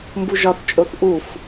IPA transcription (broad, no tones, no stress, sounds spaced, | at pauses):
m b u ʒ ɒ θ t͡ʃʼ o θ ʔ u f